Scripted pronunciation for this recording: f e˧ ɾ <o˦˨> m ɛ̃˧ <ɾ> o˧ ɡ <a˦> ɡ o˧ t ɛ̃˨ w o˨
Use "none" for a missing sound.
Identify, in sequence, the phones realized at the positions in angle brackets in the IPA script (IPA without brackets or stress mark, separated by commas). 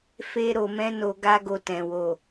o˨, n, a˦